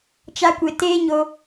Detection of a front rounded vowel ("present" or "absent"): absent